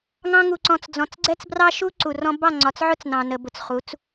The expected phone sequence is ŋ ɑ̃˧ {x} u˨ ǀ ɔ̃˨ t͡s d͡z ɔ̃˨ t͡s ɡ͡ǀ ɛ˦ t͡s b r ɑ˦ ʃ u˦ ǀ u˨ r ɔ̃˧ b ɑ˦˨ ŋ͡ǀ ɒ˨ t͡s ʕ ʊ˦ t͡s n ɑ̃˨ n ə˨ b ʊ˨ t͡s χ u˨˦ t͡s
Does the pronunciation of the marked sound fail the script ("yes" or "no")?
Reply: yes